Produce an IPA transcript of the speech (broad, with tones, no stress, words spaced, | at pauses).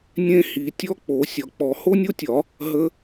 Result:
nʲẽ˦˥ hi˨˩˦tʲɔ˦˥ k͡po˨˩˦ sʲɒ˨˩˦k͡pɔ˨˩˦ ho˦˥nʲo˦˥tʲɒ˨˩˦ | ɦə˦˥